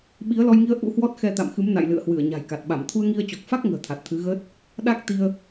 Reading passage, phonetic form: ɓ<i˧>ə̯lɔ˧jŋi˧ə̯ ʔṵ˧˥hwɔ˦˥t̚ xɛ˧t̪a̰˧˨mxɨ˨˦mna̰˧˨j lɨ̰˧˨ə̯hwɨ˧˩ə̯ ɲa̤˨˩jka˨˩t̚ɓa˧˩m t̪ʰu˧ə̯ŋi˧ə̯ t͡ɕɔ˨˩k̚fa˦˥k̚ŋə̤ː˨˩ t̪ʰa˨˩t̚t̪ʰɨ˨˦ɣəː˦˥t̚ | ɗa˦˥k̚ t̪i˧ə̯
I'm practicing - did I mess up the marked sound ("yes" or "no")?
yes